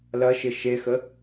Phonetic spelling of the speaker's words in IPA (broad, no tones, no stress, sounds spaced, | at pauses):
l ɐ ʃ ɪ ʃ e x ə